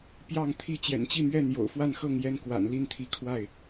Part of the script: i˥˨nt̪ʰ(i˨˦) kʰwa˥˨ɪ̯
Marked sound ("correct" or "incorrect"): correct